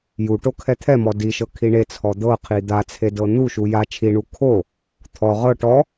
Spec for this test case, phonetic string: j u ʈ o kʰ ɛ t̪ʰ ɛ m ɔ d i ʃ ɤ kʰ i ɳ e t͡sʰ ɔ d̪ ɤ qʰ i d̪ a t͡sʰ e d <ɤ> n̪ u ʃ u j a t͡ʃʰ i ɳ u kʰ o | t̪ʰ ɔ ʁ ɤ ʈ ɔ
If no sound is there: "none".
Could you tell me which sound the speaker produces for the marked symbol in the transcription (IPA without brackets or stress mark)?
ɤ